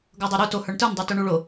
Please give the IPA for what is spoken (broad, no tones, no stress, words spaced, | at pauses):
ɡɤdˤoɾu to hə˞ɳtə˞n dˤə˞tuɳuɭo